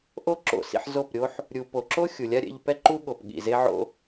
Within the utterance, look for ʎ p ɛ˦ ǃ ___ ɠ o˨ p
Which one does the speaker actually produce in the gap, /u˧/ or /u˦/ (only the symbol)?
u˦